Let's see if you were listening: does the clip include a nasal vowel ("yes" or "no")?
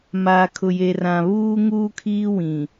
yes